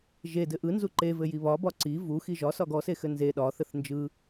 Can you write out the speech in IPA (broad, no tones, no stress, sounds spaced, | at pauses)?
ʒ e d ɘ ʔ ɯ n z u ǃ e v ɘ j i β ɒ b ɒ ǀ i v u x i ʒ ɒ s ɒ ɡ ɔ s e x ɘ n z e ɗ ɒ θ ɘ θ n d͡ʒ ɯ